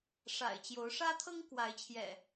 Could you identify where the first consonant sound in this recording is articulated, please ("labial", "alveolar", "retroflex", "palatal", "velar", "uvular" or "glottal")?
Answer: retroflex